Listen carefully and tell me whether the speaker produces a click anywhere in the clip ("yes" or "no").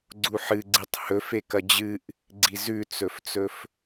yes